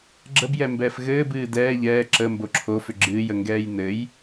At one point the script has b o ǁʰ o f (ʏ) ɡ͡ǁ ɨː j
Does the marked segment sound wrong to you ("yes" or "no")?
no